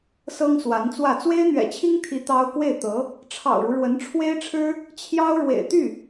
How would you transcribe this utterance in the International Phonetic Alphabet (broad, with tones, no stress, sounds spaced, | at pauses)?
s ɤ˥ ŋ s w a˧˥ n t͡s w ä˥˩ t͡s w e˥ ɪ̯ n̪ ɥ ɛ̰˨˩ t͡ɕʰ i˥ ŋ t̪ʰ i˧˥ t̪ ɑ˥ ʊ̯ k w e˥˩ ɪ̯ t̪ ɤ˧˥ | ʈ͡ʂʰ ɑ̰˨˩ ʊ̯ ɻ u˦ ɻ w ə˧˥ n ʈ͡ʂʰ w e˥ ɪ̯ ʈ͡ʂʰ ɻ̩˥ | t͡ɕʰ j ɑ˥ ʊ̯ ɻ w ḛ˨˩ ɪ̯ t̪ y˥˩